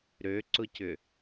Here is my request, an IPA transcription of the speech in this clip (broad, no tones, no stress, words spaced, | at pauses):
ɾøǀʊcʏ